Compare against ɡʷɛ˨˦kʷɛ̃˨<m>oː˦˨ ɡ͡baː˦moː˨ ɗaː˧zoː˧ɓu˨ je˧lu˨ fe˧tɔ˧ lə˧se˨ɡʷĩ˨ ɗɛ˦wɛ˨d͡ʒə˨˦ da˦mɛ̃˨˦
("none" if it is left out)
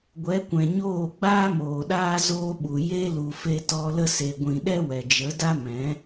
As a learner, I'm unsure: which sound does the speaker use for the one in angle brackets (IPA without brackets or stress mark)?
ɲ